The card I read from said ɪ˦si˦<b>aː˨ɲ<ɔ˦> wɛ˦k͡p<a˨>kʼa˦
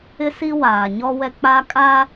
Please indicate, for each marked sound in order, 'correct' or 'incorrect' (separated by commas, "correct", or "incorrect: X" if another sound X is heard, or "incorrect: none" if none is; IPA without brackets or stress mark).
incorrect: w, correct, incorrect: a˦